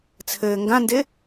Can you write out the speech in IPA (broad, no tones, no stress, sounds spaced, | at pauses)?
t͡sʰ ɘː ŋ ɡ ã n d ɪ